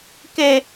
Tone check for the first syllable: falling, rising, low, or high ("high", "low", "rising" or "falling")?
high